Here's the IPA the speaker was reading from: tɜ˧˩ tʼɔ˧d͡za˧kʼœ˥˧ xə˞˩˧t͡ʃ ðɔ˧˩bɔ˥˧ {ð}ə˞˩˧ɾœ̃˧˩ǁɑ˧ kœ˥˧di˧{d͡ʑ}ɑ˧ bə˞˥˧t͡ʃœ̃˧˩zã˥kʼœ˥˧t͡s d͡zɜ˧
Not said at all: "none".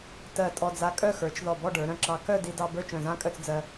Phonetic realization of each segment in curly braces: ɖ, d

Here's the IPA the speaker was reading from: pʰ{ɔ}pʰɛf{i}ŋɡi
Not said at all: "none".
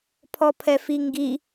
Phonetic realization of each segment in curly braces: ɔ, i

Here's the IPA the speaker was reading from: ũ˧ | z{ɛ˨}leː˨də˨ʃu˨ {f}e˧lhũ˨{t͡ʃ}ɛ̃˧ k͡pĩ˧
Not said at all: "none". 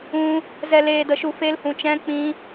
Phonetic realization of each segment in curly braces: ɛ˨, f, t͡ʃ

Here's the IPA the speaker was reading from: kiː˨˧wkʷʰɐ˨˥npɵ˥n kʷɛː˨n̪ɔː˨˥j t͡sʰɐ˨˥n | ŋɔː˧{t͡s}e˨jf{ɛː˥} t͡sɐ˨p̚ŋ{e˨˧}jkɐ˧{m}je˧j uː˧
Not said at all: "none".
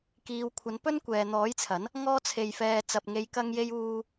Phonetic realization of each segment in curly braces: t͡sʰ, ɛː˨, e˨˧, ŋ

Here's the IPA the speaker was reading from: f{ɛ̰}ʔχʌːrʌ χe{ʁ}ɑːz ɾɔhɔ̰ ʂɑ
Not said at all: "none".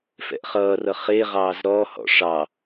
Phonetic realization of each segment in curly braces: ɛ̰, ʁ

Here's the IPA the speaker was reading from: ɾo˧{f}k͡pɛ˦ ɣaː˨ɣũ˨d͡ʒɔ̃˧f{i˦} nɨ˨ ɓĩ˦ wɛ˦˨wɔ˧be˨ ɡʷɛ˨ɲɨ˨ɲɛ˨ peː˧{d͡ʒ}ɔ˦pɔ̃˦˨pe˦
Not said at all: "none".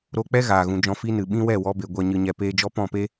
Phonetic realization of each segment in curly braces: none, i˦, d͡ʒ

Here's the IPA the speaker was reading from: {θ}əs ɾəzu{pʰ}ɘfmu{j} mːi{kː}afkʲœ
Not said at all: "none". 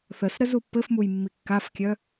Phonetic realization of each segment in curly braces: θ, pː, j, kː

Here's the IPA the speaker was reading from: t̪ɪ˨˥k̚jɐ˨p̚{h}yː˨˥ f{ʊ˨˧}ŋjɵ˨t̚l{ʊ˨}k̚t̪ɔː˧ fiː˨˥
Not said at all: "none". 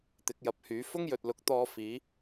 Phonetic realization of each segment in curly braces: h, ʊ˥, ʊ˨˥

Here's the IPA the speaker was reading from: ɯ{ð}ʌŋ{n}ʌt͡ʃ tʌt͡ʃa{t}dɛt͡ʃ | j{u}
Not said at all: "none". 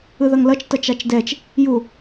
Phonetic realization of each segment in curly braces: ð, l, t͡ʃ, u

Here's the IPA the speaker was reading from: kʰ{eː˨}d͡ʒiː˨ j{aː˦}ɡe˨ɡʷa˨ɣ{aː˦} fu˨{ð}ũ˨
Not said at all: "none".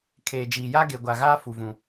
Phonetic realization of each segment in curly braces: eː˨, a˦, aː˦, v

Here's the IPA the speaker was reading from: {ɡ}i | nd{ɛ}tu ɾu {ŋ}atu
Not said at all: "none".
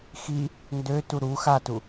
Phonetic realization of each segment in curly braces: x, ø, x

